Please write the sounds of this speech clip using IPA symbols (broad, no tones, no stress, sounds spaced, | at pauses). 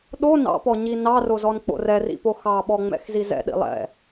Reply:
ɗ o n ɑ̰ p ɔ ɲ i n ɑ r o z ɔ n k͡p o̰ r ɛ r ḭ p o x ɑ ɓ ɔ ŋ͡m ɛ̰ x z i z ɛ̰ ɗ ḭ lˠ ɛ̰